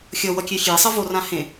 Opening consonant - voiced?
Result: no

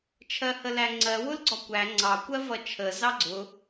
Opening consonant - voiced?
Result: no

